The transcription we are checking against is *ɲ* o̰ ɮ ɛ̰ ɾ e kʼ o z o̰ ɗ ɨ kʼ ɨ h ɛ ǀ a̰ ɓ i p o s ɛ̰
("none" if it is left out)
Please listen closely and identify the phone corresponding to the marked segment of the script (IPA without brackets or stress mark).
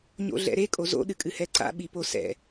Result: ɲ